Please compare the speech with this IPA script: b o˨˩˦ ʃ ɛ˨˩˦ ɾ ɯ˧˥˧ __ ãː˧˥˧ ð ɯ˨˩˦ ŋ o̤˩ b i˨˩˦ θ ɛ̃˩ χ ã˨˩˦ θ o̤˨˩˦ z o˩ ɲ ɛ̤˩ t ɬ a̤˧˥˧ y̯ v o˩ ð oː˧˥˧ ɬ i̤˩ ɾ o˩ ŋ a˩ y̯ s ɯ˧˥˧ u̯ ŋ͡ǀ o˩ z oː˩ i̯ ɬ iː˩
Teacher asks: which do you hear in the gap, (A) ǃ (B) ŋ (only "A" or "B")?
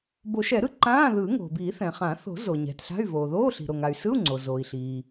A